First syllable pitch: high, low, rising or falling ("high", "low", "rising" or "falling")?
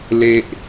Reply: high